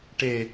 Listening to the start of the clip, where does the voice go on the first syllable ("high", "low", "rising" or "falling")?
low